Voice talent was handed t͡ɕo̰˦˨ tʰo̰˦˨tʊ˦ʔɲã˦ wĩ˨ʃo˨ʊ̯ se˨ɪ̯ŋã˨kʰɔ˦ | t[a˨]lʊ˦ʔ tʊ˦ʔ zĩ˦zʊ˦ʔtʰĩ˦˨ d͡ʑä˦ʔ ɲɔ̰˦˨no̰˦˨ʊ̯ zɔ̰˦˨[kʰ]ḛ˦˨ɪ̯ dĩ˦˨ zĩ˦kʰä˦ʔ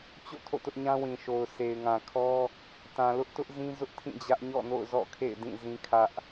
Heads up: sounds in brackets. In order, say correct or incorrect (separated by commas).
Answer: incorrect, correct